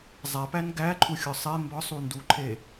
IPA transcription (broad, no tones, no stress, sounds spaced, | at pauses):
zˤ æ p æ n ɡ æ ǃʰ u xʲ ɒ sˤ e m b ɒ sˤ u n d u ǃʰ e